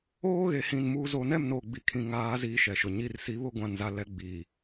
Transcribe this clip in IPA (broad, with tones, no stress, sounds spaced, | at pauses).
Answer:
oː˦ ɣ e˨ h ĩ˨ n m uː˨ z o˨ n ɛ˦˨ m n oː˨ ɡ͡b i˨ kʰ ĩ˨ ŋ aː˨˦ z iː˨ ʃ ɛ˨ ʃ ʊ˨ ɲ i˦ r s i˨˦ β ʊ˦ ɡʷ ã˨ n z a˨ l ɛ˦ ɡ͡b i˨